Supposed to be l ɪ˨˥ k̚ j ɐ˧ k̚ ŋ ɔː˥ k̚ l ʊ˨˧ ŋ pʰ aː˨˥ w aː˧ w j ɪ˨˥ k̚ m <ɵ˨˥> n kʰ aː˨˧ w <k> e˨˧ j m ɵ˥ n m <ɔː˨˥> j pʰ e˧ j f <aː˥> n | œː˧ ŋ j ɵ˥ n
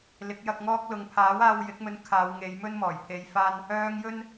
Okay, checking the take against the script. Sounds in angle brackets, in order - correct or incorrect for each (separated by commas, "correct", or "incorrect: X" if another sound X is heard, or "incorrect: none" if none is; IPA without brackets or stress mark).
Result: incorrect: ɵ˧, incorrect: ŋ, incorrect: ɔː˨˩, correct